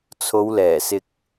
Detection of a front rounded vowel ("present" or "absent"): absent